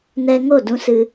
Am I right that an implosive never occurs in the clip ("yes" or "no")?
yes